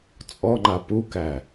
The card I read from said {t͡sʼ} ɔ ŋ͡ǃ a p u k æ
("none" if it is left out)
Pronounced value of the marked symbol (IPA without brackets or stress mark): t͡sʼ